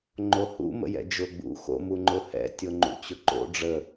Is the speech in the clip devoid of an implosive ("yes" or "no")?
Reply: yes